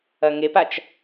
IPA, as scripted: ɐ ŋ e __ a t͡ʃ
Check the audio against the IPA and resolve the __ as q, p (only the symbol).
p